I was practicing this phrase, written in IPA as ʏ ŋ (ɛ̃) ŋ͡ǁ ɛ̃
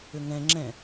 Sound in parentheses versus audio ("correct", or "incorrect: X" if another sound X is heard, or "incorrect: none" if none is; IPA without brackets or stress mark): correct